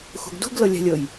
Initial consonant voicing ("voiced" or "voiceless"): voiceless